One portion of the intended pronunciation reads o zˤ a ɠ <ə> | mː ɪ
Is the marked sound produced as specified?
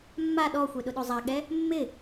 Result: no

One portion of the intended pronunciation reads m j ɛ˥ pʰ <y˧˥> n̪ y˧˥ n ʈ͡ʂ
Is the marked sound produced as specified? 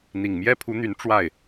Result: no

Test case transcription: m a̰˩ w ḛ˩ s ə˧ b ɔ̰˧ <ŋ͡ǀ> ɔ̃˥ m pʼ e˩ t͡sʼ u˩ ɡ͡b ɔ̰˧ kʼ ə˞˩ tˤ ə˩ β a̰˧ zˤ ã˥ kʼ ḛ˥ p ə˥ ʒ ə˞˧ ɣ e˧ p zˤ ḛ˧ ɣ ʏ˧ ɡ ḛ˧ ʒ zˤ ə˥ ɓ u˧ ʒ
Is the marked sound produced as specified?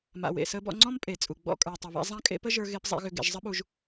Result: yes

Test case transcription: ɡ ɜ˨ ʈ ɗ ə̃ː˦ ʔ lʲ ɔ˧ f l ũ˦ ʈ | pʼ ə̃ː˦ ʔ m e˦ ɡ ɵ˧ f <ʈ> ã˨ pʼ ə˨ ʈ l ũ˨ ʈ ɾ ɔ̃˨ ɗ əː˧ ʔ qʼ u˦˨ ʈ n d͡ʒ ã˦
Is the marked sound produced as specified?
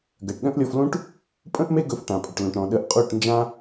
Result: yes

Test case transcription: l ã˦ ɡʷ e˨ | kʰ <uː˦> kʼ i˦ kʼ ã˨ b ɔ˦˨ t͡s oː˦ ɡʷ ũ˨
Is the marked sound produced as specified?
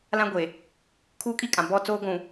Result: yes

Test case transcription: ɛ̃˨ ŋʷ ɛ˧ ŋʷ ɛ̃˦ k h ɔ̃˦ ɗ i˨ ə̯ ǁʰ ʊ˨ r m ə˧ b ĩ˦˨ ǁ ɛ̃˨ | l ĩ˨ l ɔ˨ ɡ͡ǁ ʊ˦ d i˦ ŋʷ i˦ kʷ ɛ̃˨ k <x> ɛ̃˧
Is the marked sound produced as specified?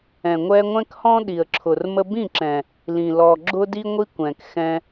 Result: yes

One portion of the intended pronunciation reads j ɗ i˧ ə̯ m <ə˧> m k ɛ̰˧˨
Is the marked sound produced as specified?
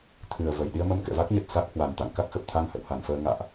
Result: yes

